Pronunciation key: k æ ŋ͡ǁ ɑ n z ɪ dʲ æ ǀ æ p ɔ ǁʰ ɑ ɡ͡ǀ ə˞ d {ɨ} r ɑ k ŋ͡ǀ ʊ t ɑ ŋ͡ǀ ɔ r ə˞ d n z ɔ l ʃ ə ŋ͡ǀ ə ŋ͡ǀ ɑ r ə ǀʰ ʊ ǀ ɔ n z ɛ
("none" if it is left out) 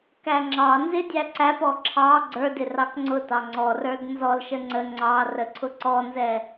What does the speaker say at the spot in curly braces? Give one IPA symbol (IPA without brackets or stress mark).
ɪ